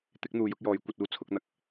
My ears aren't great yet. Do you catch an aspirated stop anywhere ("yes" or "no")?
yes